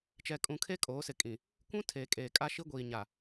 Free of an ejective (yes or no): no